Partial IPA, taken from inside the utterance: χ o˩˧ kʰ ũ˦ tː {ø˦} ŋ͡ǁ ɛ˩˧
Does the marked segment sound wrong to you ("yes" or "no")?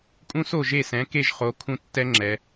yes